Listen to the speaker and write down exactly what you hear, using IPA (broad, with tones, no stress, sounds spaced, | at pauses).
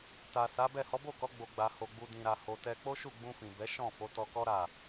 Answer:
t a˨ s a˨˦ b ɛ˦˨ h ɔ˨˦ b o˦˨ k ɔ˨˦ ɡ͡b o˧ ɡ͡b a˧ h o˨ ɡ͡b u˨ d ĩ˨ ɾ a˨ h o˧ t ɛ˦ k͡p o˦ ʃ u˦˨ ɡ͡b ũ˧ f ĩ˨ b ɛ˨˦ ʃ ɔ̃˦˨ f o˨˦ t ɔ˧ k ɔ˦ ɾ a˦˨